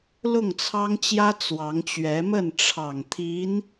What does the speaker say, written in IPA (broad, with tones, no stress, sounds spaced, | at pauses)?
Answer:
l ʊ˥˩ ŋ t͡sʰ ɑ˥ ŋ t͡ɕ j ä˥ t͡s w ɑ˧˥ ŋ t͡ɕ ɥ ɛ˧˥ m ə˥˩ n ʈ͡ʂʰ ɑ˨˩ ŋ t̪ʰ i˧˥ n